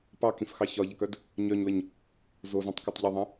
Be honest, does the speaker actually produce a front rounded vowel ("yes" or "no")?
yes